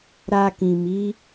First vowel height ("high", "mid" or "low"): low